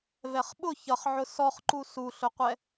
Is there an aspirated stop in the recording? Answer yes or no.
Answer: no